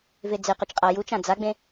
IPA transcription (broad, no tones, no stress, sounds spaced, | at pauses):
v e d͡z e q ø t͡ʃ qʼ a j u t͡ʃ ã d͡z a ɡ͡b ẽ